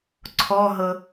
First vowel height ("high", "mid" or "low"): mid